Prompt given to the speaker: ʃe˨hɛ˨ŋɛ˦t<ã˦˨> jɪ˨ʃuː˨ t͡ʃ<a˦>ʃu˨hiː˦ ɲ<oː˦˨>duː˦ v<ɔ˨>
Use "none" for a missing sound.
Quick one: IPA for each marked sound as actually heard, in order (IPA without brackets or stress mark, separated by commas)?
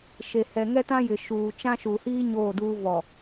ã˦, ã˦, oː˦˨, ɔ˨